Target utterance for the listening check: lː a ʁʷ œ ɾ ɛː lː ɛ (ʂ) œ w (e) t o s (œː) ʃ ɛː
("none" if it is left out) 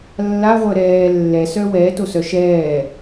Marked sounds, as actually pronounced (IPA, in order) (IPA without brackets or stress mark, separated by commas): s, ɛ, œ